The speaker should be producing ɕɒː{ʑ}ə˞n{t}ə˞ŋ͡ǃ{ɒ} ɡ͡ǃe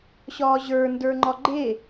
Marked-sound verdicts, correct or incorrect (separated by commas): correct, incorrect, correct